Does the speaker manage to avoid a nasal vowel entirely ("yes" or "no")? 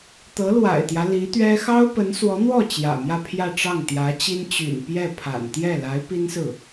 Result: yes